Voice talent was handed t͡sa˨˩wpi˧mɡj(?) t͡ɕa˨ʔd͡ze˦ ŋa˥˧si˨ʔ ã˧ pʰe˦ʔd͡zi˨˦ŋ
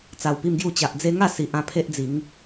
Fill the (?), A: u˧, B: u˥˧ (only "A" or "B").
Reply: A